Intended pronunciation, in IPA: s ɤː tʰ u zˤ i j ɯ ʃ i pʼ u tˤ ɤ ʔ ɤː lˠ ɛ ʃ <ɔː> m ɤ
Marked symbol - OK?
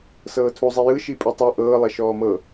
yes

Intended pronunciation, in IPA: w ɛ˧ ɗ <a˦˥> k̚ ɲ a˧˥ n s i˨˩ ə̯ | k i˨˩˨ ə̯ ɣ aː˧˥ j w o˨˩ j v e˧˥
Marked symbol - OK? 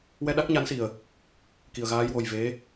yes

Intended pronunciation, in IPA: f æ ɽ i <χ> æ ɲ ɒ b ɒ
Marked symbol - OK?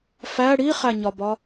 yes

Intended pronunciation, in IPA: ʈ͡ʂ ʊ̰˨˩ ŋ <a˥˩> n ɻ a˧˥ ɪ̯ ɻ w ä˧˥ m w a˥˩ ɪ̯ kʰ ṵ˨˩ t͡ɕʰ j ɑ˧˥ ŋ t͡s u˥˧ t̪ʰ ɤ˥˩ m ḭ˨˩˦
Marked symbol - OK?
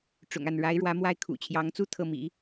yes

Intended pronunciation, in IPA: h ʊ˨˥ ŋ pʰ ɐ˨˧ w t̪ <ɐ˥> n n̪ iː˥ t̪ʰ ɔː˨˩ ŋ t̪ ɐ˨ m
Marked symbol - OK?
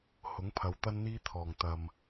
yes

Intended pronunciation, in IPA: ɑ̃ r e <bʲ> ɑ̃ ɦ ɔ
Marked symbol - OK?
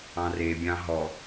yes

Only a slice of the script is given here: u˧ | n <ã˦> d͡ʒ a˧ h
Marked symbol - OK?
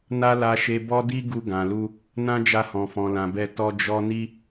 yes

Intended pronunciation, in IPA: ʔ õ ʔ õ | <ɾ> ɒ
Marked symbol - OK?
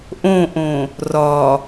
no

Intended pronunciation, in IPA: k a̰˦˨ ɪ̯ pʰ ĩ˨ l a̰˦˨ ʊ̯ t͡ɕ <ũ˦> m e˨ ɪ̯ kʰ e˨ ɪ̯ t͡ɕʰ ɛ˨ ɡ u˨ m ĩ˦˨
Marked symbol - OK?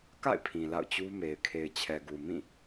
no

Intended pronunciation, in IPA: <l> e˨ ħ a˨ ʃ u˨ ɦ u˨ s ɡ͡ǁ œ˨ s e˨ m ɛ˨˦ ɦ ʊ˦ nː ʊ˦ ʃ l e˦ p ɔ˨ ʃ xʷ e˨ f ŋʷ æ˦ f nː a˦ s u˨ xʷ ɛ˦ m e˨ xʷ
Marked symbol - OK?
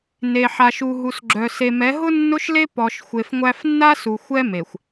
no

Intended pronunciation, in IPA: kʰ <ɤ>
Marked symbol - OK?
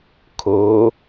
no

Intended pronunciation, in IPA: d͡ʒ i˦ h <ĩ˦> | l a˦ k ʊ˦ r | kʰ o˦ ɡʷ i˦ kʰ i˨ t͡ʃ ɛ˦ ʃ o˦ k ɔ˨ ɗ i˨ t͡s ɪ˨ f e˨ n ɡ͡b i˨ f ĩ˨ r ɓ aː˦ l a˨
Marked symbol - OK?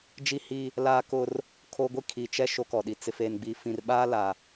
no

